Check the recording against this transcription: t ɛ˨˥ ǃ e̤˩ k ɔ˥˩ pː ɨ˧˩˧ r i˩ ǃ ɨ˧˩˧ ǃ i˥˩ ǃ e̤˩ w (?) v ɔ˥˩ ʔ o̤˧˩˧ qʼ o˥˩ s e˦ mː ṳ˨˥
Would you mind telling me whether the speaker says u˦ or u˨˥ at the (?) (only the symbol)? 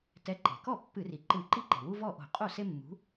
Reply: u˦